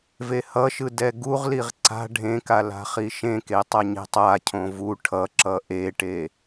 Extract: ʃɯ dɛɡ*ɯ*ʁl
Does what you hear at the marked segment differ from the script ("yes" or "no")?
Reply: yes